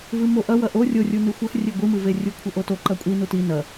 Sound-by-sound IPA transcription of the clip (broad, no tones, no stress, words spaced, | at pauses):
vɨmoʔɐ wɐʔo rʲorʲu nɨxʷɐx rʲeɡʷɨmɨve rʲukʷʰɘʔoto ǃɐkʷʼi nuti nɐ